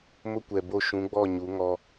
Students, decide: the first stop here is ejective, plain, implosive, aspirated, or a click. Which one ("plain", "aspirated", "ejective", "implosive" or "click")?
plain